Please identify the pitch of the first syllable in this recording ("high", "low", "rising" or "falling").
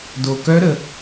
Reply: low